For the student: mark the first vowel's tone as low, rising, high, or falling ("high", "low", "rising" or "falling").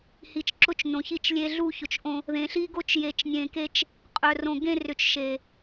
low